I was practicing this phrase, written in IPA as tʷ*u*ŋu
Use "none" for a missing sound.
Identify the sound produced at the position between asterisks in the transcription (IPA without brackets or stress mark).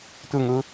ɯ